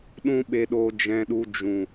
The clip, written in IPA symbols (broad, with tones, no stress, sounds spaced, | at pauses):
ɗ ũ˦ ɓ e˧ ɗ oː˧ d͡ʒ ɛ̃˧ ɗ u˧ d͡ʒ ũ˨